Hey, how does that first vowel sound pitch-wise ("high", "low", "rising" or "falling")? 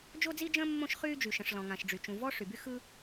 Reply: high